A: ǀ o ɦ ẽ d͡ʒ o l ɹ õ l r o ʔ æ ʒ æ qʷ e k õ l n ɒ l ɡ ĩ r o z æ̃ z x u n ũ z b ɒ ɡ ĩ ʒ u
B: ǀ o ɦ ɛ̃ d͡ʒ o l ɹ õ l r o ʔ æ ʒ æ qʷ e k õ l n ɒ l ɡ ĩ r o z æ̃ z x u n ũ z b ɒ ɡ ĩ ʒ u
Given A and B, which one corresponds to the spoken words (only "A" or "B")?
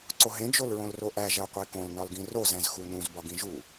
A